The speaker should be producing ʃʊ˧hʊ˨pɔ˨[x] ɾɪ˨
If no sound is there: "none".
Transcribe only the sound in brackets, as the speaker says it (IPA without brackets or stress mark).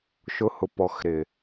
x